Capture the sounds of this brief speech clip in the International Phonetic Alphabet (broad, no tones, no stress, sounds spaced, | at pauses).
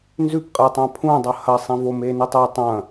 n z ʉ p qʼ e tˤ ã pʰ ũ dˤ ɐ h ɐ sˤ ĩ v o m e n i tˤ e tˤ ɐ̃